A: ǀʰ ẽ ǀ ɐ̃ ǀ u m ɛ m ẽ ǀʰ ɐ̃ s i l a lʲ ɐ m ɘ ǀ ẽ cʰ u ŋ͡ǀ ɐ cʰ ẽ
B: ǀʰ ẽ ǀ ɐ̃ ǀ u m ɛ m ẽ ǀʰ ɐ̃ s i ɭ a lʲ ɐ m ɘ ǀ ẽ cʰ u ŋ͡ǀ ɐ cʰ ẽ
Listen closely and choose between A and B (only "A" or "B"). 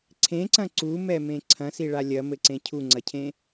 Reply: B